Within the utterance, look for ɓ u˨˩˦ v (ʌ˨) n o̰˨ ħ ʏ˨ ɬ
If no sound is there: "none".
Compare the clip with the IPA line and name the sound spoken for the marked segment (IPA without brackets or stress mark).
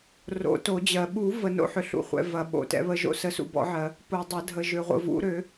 ə˨